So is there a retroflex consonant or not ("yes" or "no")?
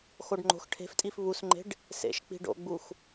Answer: yes